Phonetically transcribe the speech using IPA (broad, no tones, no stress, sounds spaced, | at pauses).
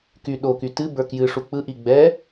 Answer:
k y ɗ o k y t ɨ b ə˞ k j ɨ ʂ u k͡p ɯ ʔ i ɡ͡b ɛ